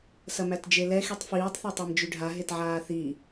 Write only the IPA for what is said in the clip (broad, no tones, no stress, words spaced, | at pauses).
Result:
sɐmætd͡ʒelɛ xitˤfiːtˤ θetˤæmd͡ʒyɖʱa ɦetʕaːθi